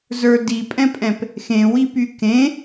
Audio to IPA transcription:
z ə˞ d i pʼ ɛ̃ pʼ ɛ̃ p | x ẽ w i p y k ẽ

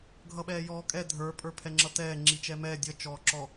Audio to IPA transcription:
ɡʱ ʌ ɓ ɛː j ɔː kʼ ɛ dʱ ə˞ pʼ ə˞ pʰ ɛ ŋ͡ǁ ʌ t ɛː ŋ͡ǁ i t͡ʃ ɛ m ɛː dʲ ʌ t͡ʃ ɔː ǁ ɔ

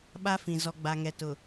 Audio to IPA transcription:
ɓ a˦ f ĩ˨ z ɔ˨ ɡ͡b a˨ ŋ ɛ˨ t ʊ˨

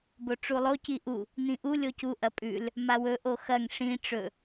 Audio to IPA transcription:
b o ʈ͡ʂ u lˠ o c i ʔ u | n̪ ĩ ʔ u lʲ o c u ʔ ɐ pʼ ʉ l | m a w ɵ ʔ o x ɐ ŋ ʂ ĩ ʈ͡ʂ ɵ

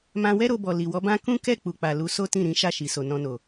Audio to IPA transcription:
m ã˧ w ɛ˦ ɾ o˧ b ɔ˨ l i˨ w ɔ˨˦ b ã˦ k ũ˦ k ɛ˦˨ k͡p u˨ k͡p a˨ l u˨˦ s o˦ t ĩ˦˨ ɾ ĩ˨˦ ʃ a˦˨ ʃ i˨ s o˨ n ɔ̃˧ n o˨

